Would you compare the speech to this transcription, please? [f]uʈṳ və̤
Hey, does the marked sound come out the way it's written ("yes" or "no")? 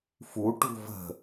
yes